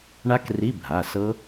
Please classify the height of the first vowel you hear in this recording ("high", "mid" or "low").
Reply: low